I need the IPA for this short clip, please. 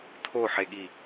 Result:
tʰ o ħ e ɠ i

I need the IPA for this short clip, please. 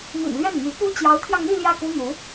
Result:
m ḭ˨˩ n l ɥ ɛ˥˩ n m y˧˥ p u˥ t͡ɕ j ɑ˧˥ ʊ̯ t̪ʰ j ɑ˧ ŋ n̪ i˥˧ l j ä˥˩ k u˥ n̪ u˧˥

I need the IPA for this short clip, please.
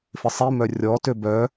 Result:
f ɪ sˤ i m œ rʲ ɔ t ø b œ

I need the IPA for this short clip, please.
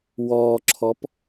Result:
w ɔː ǁʰ ɔ p

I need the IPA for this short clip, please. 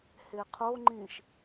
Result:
h e qʰ o ŋ͡ǃ ĩ ʃ

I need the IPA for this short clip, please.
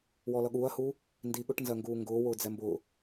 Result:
w ɔ l ʌ ɠ uː ɐ̯ h uː | n d i ɠ ʊ ʈ n z ɜ ŋ ɡ uː ŋ ɡ ʊː w ʊː d͡z ɛ m b ʊː

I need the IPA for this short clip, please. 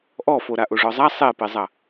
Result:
ʔ ɔ f o ɾ a ʔ o ʐ ɔ zˤ a sˤ e p e zˤ ɐ

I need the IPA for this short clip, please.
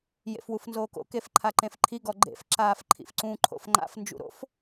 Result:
j ḛ f w u f n z oː k o̰ k e f ǃʰ a ǃ ẽ f ǃʰ i ɡ ɔ ɡ͡ǃ ḛ f ǁ aː f ǃʰ ḭ f ǀ ũ ǃʰ o̰ f ŋ͡ǃ a̰ f n d͡ʒ ṵ ɾ o̰ f

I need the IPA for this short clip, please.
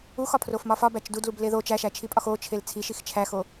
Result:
u x ɒ pʰ r o f m ɒ f ɒ b æ t͡ʃ d u d l u b l e ð o t͡ʃ æ ʃ æ t͡ʃʰ i pʼ ɒ x o t͡ʃʰ e l t͡sʰ i ʃ i x t͡ʃʰ æ x o

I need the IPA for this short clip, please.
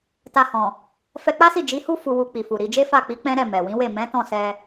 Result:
t a˧ h ɔ̃˨ | f ɛ˧ k͡p a˦ s i˦˨ d͡ʒ i˨˦ h u˦ f u˧ w u˧ k͡p i˨ f u˨ ɾ i˧ d͡ʒ e˦ f a˦˨ k͡p i˨˦ k͡p ɛ̃˦ ɾ ɛ˦˨ m ɛ˨ w ĩ˨˦ w e˦˨ m ɛ̃˨˦ t ɔ̃˦˨ s ɛ˧

